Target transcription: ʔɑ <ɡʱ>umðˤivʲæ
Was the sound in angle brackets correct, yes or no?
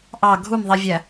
yes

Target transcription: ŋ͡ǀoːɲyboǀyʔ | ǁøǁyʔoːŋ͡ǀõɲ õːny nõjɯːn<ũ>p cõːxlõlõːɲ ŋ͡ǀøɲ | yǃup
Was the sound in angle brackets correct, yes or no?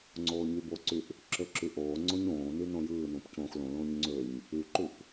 yes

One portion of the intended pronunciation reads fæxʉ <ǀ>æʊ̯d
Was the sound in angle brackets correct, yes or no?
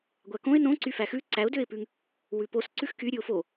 yes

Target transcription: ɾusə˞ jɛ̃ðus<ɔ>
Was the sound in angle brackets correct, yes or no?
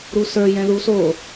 no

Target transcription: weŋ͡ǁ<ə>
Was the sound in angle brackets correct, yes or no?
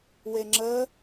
yes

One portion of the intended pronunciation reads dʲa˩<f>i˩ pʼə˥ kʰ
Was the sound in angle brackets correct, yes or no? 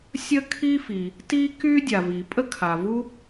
no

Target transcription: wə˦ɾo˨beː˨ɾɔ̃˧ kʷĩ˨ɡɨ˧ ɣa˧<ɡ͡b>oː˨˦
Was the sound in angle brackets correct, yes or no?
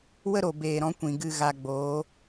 yes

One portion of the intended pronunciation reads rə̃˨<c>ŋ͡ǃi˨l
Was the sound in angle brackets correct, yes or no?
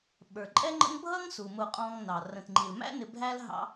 no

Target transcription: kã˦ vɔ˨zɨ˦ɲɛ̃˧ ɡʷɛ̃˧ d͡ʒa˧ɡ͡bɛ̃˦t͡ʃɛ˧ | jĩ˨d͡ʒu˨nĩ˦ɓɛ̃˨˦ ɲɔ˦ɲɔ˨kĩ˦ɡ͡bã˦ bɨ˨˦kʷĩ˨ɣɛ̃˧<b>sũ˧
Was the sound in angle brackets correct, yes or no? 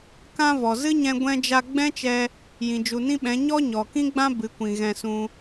no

